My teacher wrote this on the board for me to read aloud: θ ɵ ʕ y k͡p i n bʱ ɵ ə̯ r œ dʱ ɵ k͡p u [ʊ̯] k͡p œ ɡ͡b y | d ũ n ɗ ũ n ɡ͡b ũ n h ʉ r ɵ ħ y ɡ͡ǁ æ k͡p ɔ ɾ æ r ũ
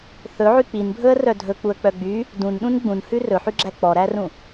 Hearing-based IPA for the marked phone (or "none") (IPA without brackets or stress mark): ə̯